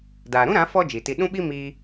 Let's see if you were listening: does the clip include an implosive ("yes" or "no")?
yes